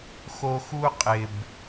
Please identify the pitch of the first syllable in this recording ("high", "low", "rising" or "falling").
high